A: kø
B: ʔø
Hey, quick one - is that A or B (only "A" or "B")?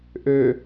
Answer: B